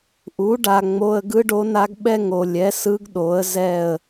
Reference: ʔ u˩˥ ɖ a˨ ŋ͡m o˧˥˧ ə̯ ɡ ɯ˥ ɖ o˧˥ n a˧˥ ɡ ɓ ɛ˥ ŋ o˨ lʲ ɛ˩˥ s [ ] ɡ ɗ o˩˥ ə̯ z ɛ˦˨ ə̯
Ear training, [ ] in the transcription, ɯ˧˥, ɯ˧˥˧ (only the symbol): ɯ˧˥